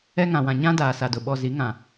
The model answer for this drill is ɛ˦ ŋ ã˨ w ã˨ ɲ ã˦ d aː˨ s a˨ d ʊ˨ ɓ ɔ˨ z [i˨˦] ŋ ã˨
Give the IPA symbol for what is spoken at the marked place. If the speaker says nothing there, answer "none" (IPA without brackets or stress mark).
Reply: i˨˦